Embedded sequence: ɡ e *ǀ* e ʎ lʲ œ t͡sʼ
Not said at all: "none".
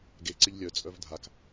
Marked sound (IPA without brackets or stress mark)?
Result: ǀ